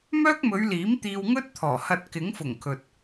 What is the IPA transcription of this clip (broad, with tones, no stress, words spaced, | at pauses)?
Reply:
mœː˥k̚mɵ˨˧ɥliː˨˥m t̪iː˧wŋɵ˥t̚t̪ʰɔː˨˩hɐ˧t̚ kɪ˨˥ŋfʊ˨˩ŋkʰɵ˨t̚